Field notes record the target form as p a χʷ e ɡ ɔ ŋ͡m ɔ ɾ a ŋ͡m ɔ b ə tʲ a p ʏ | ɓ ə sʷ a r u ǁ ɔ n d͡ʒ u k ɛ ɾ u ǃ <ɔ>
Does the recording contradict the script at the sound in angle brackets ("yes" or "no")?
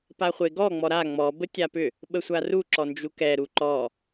no